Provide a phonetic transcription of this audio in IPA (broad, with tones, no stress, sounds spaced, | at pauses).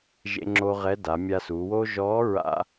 ʒ ḛ˧ ŋ͡ǁ o˧ ʁ ɛ˧˥ d a˩˧ mʲ a˧ s uː˩˧ w oː˥ ʒ ɔː˧˥ ɹ a̰˥